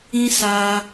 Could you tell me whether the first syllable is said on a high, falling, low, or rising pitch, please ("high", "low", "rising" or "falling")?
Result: high